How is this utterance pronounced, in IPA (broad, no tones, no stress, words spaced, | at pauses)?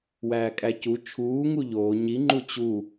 wæːkʼæcu t͡ʃʰuː ŋuʎoː ɲi ŋ͡ǃut͡ɕu